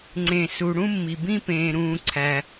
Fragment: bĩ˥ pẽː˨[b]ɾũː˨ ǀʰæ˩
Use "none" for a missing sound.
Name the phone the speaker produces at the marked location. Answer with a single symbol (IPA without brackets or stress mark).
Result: none